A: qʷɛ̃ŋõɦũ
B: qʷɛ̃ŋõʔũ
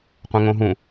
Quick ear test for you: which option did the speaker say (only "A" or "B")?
A